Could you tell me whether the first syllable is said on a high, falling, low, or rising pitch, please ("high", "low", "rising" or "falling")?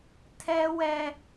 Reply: high